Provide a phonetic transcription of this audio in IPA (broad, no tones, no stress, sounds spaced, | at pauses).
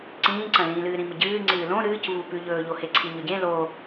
ǀ ĩː ǀ ɐ̃ l ĩː l ɨː ɾ ĩ m ɨ ɟ ɨː ŋ͡ǀ ɨː l õ ɾ ɨː c v u p ʉ ʎ ɵː ʎ o h e ǀʰ i ɲ ɵ ɟ ẽ l o